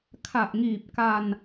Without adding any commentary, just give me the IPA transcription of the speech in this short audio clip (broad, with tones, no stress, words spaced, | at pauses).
kʰa˨˩ʔŋiː˨˩p̚ka˧n